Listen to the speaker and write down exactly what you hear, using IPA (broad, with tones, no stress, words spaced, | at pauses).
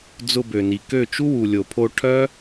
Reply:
d͡zʊ˧bø˨ni˨kø˦˨ t͡ʃu˦wu˨lʲo˨pʰo˧ ʈʰœ˦